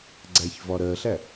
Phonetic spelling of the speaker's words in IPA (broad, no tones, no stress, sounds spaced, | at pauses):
ɡ͡ǀ æ ç v ɒ ɾ ɜ ɬ æ